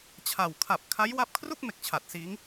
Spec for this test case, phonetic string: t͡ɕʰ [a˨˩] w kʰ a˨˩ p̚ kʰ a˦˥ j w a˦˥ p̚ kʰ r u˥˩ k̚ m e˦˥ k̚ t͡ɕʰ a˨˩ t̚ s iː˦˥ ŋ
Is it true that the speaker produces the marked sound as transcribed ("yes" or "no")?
yes